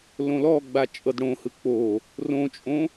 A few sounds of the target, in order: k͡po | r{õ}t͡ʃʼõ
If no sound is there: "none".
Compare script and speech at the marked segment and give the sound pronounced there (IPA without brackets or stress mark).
õ